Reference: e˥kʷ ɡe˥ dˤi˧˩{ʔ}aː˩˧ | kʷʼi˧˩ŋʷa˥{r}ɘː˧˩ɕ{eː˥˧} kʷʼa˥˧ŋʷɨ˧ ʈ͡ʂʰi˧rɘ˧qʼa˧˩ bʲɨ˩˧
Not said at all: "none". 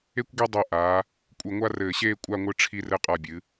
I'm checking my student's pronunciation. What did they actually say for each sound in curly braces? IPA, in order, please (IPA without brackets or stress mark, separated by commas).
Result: ʔ, r, eː˥